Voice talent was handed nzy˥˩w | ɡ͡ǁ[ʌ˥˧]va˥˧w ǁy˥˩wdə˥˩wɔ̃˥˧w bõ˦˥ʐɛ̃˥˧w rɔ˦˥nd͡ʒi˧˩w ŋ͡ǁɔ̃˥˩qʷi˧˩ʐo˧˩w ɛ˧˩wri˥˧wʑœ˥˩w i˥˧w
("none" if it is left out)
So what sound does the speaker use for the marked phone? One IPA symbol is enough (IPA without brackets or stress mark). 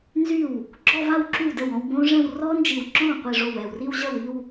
ɔ˥˧